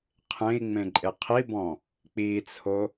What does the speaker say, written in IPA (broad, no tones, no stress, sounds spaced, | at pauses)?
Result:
qʰ ẽ i̯ ŋ͡m ẽ ǃʼ e qʰ i b ɔ̃ | k͡p i t͡sʰ o